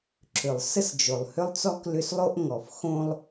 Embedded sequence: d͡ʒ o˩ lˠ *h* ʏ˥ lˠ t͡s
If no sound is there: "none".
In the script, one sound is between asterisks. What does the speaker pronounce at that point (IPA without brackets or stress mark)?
h